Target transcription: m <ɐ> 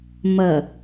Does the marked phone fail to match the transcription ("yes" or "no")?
no